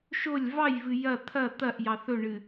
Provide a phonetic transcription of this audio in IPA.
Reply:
ʃ o lʲ v ɑ j v ɨ j ɐ t̪ʰ ɐ t̪ ɐ ʔ j ɑ θ ɵ ɳ ɨ

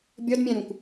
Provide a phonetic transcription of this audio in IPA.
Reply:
bʲ ɒ d mʲ æ̃ ɾ ũ kʷ

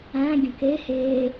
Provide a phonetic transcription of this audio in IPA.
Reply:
æ̃ ɡʲ ə̃ k e h e

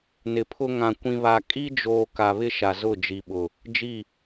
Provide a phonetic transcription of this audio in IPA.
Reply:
n ɪ˨ pʰ ʊ˦ ŋ ã˨ kʷ ĩ˨ β a˨ kʼ i˦ d͡ʒ oː˨ k a˨ β ɪ˦ ʃ a˨ z ʊ˦˨ d͡ʒ i˨ ɓ ʊ˨ | d͡ʒ i˦˨

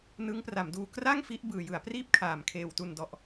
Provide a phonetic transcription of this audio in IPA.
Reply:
n ɯ˦˥ ŋ p r a˩˦ m d uː˧ k r a˥˩ ŋ f i˦˥ ʔ b ɯː˨˩ j ɯ˩˦ a̯ p r iː˥˩ p̚ kʰ aː˩˦ m kʰ eː˨˩ w t u˨˩ n d ɔ˨˩ ʔ

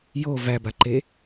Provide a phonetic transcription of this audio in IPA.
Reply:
j o v æ b a ǃ e

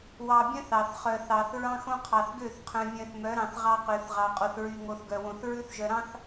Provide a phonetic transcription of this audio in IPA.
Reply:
w ɑ˨ bʲ œ̃˦ θ ɑ˨ θ χ œ˨ θ ɑ˨ θ ɹ ɑ̃˦ x õ˦ qʰ ɑ˨ θ ɡ ø˦˨ θ qʰ œ̃˨ vʲ œ̃˨ θ m œ˨˦ ɾ ɑ̃˨ θ ʁ ɑ˦ q ø˨ θ ʁ ɑ˨ qʼ o˨ θ ɹ y˨ ŋ o˨ θ ɡ œ˨ w õ˨ θ ɹ ʉ˦ θ ʒ œ˨ ɾ ɑ̃˦ θ

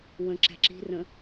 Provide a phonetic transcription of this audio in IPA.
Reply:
w ə̃ ǁ æ̤ ǁ i̤ r ə̃

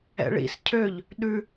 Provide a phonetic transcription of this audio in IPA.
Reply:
ɛ̰ ɭ ḭ s cʰ ø ʎ | ɗ ʉ

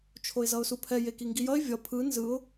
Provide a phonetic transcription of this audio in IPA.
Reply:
t͡ʃʰ o ɪ̯ z ʌ ʊ̯ s u pʰ ɛ j e k i ŋ ɡ i j ʌ ɪ̯ vʲ ʌ pʰ ɯ n z ɯ ʊ̯

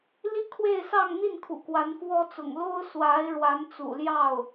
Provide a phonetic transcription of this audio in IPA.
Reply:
l i˥˧ kʰ w e˥˧ ɪ̯ s ɑ˥˧ ŋ n̪ i˥˩ n kʰ ṵ˨˩ k w a˧˥ n f w ɔ˥ t͡s ʊ̰˨˩ ŋ l o˥ ʊ̯ s w a˧˥ ɪ̯ ɻ w a˧˥ n t͡s ṵ˨˩ l j ɑ˥˩ ʊ̯

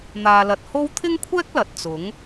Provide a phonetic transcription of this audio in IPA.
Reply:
n̪ aː˨ l ɐ˨ t̚ h o˥ w t̪ʰ ɪ˥ ŋ kʷʰ ɛː˥ k̚ l ɐ˨ t̚ t͡s ʊ˨˥ ŋ

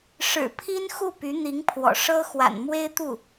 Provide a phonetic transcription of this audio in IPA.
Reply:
ʂ ɻ̩˨˩ pʰ i˥ n x u˥˩ p y˧˥ n̪ i˧˥ ŋ pʰ w ɔ̰˨˩ ʂ ɤ˥ x w a̰˨˩ n m w e˥ ɪ̯ t̪ u˥˩

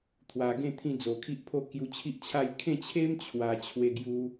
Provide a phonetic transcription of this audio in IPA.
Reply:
t̪ʰ w a˨˩ ɡ ẽ˥˧ t̪ʰ ĩ˧ d͡z o˨˩ kʰ i˦ ʔ pʰ o˥˧ k j u˧ t͡ɕʰ i˦ ʔ t͡ɕʰ a˥˧ j kʰ ẽ˥˧ t͡ɕʰ e˦ m t͡ɕʰ w a˨˩ t͡ɕʰ w e˧ ɡ j u˧

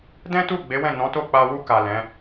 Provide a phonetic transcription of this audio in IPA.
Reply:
d ɛ̃˦ t u˦˨ ɡ͡b e˨˦ w ɛ̃˦˨ n ɔ̃˨˦ t o˦˨ k͡p a˧ w u˧ k a˨ l ɛ̃˨˦

